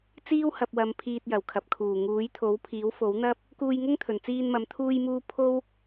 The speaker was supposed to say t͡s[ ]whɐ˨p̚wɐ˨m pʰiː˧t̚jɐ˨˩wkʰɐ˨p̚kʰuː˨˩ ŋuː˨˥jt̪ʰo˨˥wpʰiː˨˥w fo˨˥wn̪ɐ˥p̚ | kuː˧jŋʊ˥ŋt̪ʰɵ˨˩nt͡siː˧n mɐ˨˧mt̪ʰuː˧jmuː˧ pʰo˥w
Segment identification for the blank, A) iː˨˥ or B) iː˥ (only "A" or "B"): B